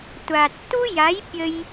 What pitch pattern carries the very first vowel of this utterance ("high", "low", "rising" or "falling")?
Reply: low